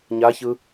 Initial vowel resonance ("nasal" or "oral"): oral